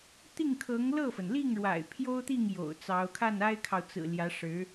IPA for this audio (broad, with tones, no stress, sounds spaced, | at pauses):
t̪ i˥˩ ŋ kʰ ɤ˧˥ ŋ l ɤ˥˩ f ə˩ n l i˥˩ ŋ ɻ w a̰˨˩ ɪ̯ pʰ j o˥ ʊ̯ t̪ i˥˩ ŋ j o̰˨˩ ʊ̯ t͡s ɑ˧˥ ʊ̯ kʰ a˥˩ n a˥ ɪ̯ kʰ ɑ˨ ʊ̯ t͡s ɹ̩˨˩ l j ä˧˥ ʂ ɻ̩˧˥